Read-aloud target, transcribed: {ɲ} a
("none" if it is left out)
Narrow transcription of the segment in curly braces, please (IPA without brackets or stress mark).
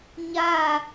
ɲ